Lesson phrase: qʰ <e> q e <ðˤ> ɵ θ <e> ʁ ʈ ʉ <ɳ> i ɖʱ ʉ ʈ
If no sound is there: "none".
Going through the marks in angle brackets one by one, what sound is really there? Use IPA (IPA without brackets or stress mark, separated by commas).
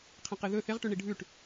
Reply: ẽ, ð, e, ɳ